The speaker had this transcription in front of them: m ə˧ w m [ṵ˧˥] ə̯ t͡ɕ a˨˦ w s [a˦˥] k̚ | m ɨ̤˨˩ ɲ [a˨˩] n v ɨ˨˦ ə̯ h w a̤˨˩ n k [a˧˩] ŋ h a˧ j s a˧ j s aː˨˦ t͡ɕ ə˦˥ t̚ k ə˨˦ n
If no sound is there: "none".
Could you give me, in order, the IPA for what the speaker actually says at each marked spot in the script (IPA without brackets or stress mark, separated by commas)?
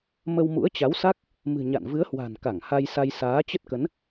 ṵ˧˥, a˦˥, a̰˧˨, a˧˩